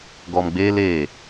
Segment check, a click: absent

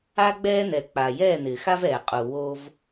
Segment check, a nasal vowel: absent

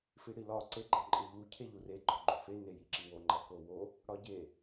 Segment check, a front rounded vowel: absent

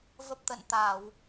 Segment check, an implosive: absent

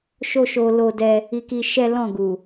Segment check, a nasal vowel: present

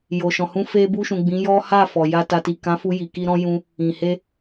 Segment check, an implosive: absent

